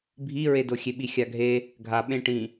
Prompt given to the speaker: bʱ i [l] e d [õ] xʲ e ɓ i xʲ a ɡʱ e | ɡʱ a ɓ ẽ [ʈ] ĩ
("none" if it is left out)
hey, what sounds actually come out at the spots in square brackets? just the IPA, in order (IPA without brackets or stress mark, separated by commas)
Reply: ɹ, o, ʈ